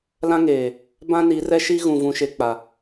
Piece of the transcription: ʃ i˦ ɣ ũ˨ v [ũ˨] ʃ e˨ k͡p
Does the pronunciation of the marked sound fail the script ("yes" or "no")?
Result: no